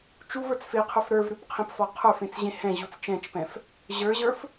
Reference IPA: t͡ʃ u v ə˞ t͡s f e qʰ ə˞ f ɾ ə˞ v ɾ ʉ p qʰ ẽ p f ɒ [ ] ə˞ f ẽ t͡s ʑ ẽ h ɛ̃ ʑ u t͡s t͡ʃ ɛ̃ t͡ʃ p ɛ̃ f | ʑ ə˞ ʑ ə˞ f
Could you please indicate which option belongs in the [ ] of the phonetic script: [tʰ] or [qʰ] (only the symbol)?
qʰ